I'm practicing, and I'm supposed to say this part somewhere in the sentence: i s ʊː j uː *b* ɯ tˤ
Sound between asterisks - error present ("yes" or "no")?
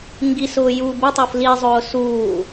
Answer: no